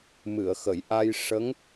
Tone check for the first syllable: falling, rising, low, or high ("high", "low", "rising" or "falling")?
low